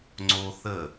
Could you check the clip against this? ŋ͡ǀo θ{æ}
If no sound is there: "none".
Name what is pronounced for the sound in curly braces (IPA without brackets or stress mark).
ə